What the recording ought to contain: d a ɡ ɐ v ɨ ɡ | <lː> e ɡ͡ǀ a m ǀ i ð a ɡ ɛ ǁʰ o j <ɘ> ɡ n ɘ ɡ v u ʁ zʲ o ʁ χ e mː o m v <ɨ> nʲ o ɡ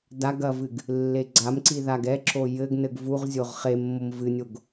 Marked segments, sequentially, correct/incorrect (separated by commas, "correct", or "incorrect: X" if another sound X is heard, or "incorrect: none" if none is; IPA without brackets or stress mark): correct, correct, correct